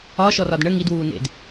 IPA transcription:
ɒ ʃ ɔ r ɒ d ɳ ə ŋ i d w uː n ḛ d

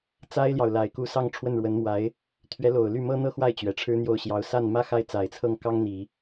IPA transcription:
t͡s a˥ ɪ̯ l j ɑ˨ ʊ̯ l a˨˩ ɪ̯ k u˧˥ s ɑ˥˧ ŋ ʈ͡ʂʰ w ə˥˩ n ɻ w ə˧˥ n m w a˧˥ ɪ̯ | t̪ʰ ɥ ɛ˧˥ l o˨˩ ʊ̯ l y˥˩ m ɤ˥ n̪ ɤ˥ x w a˥˩ ɪ̯ t͡ɕ ɥ ɛ˨˩ ʈ͡ʂʰ ɻ̩˥ n̪ j o˥˩ ʊ̯ ɕ j ɑ˧˥ ʊ̯ s a˥˩ n m ä˥ x a˥˩ ɪ̯ t͡s a˨˩ ɪ̯ t͡sʰ ɤ˥˩ ŋ k ɑ˥ ŋ n̪ i˨˩˦

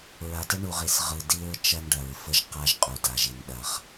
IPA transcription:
ɹ a˨ t ə˦ ɳ u˨ ʁ i˨ s ʁ ɯ˨ d i˦ ɹ t͡ʃ ɐ˦ n ɖ ɐ˨ ɹ f ə˦ ʒ q a˦ ʒ qʼ u˨ d a˨ ʒ i˨ n ɗ ɐ˦ χ

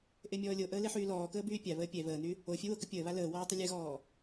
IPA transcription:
ʔ e mʲ ɔː lʲ o ʔ əː l e ħ yː l ɔː k əː b yː pʲ a β əː pʲ ɛ β əː n y | o fʲ ɛ w o k ə pʲ əː β a l əː w ɔː tˤ ə lʲ ɛ ɣ ɔː

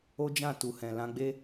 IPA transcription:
o˦ d͡ʒ ã˦˨ t u˨ h ɛ̃˨ l ã˧ ɡ͡b e˦

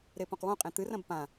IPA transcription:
ɾ e p õ q w õ qʼ ẽ t̪ ɨ r ɐ̃ b p ã

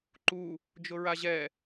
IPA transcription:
ǃ u | d͡ʒ ʊ ɹ a ʑ ɛ

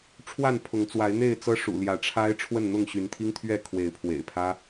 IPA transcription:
ʈ͡ʂʰ w a˥˨ n pʰ ʊ˨˦ ŋ t͡s w a˨˦ ɪ̯ n̪ e˥˨ ɪ̯ t͡s ɤ˦ ʂ ṵ˨˩ l j ä˨˦ ʈ͡ʂʰ a˦ ɪ̯ ʈ͡ʂʰ w ə˥˨ n n̪ ʊ˥˨ ŋ ɕ y˨˦ n t̪ʰ i˦ ŋ t̪ʰ ɥ ɛ˥˨ kʰ w e˨˦ ɪ̯ pʰ w ḛ˨˩ ɪ̯ pʰ ä˦

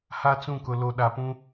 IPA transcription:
h a˦ t͡s ũ˦˨ k ʊ˨ l o˨ ɗ a˨ p ũ˦

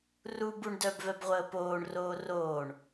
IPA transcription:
r u b u ɳ d œ b v ɛ b ʁʷ əː p oː ɳ r oː r oː ɳ

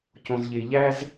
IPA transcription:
c õ˨ z ʎ e˨ ʎ æ˦ z

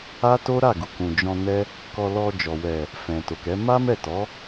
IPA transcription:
a˦ t o˦ ɾ a˦˨ ɡ u˨ k ũ˨ d͡ʒ ɔ̃˧ n ɛ˦ | k ɔ˧ l ɔ˧ d͡ʒ ɔ˨ w ɛ˨ | f ɛ̃˨ t o˨ k ɛ˨˦ m a˦ m ɛ˦˨ t ɔ˨˦

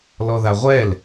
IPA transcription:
l ɔ ð a ʁʷ ɛ l

